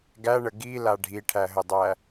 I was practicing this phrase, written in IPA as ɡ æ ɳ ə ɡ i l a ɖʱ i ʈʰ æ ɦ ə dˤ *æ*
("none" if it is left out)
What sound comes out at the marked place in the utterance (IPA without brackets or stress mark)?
æ